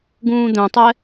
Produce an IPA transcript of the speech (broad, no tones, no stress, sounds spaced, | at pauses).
ɡ ũː d̪ œ̃ tˤ ɛ